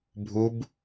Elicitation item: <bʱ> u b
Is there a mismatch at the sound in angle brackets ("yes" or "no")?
no